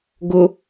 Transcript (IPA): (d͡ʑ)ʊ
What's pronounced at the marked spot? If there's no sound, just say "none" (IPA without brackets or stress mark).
ɡ